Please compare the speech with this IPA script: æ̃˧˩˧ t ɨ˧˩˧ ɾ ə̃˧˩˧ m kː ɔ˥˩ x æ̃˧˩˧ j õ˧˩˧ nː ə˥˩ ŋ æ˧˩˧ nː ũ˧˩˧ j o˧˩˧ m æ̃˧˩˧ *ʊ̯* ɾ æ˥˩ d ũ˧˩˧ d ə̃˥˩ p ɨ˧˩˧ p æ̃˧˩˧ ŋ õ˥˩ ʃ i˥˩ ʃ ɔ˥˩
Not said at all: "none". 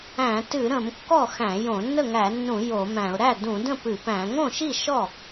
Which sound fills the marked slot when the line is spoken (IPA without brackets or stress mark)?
ʊ̯